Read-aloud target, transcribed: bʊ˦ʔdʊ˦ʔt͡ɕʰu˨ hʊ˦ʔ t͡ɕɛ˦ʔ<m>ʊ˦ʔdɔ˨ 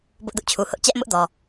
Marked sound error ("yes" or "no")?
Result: no